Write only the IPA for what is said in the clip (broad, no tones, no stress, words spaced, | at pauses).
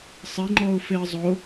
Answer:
sˤɪŋ͡ǃɔʊ̯feə̯ zˤo